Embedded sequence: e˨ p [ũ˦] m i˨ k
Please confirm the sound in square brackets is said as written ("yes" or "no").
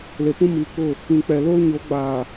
yes